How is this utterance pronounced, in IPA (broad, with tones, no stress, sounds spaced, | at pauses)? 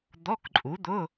d̪ ɔ˧˥˧ k ǃʼ u˨˥ d̪ ʊ˧˥˧